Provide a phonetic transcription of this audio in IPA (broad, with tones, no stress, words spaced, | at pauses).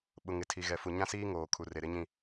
ɓʊ˨ ŋɪ˨tʰi˨ɣɛ˨ fu˨ɲã˦ siː˦ŋoː˨kʰu˨ re˨ɾɪ˦ɲĩ˦˨